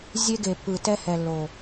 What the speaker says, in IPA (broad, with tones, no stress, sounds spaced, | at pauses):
zʲ e˦ ɡ e˨ pː ɯ˨ t ɛ˦ h ɛ˨ lː o˨